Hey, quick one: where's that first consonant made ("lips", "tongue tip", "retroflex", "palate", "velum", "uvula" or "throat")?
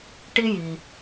retroflex